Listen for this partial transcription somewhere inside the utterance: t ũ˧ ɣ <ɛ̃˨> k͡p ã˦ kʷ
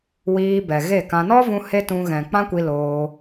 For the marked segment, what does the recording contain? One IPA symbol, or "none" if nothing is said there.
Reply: ɛ̃˨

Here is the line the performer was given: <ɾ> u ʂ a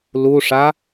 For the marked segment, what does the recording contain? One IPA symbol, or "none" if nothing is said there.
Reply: l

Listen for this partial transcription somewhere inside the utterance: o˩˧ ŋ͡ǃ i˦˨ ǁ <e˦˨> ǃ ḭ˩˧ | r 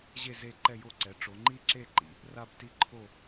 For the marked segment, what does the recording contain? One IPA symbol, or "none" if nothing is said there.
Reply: e˦˨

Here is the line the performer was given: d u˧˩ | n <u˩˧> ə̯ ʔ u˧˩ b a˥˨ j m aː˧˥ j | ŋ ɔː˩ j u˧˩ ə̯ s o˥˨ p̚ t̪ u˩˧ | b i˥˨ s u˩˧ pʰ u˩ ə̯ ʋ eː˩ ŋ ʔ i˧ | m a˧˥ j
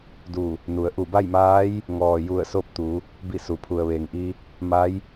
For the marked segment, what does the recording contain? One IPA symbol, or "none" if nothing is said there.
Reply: u˩˧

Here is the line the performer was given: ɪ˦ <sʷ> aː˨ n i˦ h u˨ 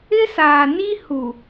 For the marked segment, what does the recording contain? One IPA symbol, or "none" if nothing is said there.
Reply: s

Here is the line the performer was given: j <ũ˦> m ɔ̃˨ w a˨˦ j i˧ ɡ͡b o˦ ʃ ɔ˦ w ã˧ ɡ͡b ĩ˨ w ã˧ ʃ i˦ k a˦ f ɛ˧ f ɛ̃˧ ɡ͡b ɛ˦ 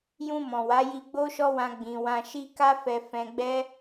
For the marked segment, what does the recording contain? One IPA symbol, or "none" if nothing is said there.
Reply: ũ˧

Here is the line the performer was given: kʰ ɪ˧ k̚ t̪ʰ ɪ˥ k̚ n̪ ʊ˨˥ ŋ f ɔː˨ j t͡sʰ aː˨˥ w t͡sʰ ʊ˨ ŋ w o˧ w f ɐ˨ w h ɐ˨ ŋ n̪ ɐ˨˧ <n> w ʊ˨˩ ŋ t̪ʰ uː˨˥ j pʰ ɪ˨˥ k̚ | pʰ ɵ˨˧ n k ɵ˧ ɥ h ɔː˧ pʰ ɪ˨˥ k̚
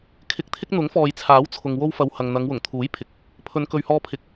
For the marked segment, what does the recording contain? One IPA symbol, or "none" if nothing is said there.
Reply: ŋ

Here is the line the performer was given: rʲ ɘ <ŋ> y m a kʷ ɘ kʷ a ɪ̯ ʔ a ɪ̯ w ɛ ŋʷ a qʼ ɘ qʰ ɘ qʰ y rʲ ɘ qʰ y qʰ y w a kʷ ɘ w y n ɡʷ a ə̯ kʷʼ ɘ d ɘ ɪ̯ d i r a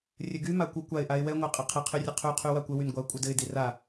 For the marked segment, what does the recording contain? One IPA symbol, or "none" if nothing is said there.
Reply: ɡ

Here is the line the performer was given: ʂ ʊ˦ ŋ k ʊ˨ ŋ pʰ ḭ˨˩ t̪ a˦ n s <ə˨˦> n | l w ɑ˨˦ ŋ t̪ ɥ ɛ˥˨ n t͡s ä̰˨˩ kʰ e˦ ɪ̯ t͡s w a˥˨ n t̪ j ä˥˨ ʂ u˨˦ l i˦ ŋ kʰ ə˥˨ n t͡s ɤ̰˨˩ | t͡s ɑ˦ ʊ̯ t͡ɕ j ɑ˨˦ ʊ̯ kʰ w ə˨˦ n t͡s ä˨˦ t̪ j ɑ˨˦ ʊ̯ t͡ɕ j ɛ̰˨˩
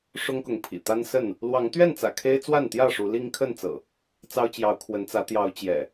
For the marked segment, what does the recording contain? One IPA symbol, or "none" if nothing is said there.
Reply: ə˥˨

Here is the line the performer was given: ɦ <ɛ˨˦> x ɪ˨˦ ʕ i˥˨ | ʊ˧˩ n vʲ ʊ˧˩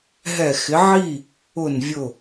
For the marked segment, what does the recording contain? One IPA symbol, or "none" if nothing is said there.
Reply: ɛ˧˩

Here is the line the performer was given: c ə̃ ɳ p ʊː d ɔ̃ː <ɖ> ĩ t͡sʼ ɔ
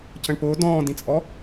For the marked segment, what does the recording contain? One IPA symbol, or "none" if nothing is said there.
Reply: d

